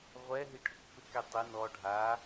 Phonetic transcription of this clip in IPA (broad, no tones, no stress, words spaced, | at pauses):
ʁʷɛɦi ʈʰʊkfɪkɛ tˤɪ nɔ ɖʱa